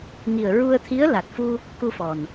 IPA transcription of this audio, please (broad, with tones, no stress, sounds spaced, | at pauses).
ŋ i˨˩ ə̯ ɹ u˧ ə̯ t̪ʰ i˧˥ ə̯ l a˨˩ t̚ f u˧ | k u˧ f ɔ˨˩ n